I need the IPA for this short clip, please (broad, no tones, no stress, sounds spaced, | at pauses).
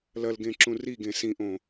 l ɐ l ɡ ẽ ǁ ũ r i ɡ ẽ s ĩ ʔ õ